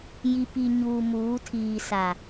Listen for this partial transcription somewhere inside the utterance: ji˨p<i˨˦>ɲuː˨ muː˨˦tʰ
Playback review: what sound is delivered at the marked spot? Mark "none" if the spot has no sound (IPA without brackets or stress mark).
i˨